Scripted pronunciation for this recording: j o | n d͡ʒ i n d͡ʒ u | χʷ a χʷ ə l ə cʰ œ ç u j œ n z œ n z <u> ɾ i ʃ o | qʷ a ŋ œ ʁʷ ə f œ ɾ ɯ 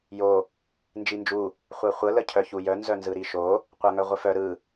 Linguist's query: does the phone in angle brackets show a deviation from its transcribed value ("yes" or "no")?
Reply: yes